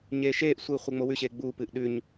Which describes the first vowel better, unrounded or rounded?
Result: unrounded